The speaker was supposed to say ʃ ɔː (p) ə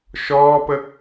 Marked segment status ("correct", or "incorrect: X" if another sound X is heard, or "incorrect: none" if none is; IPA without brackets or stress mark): correct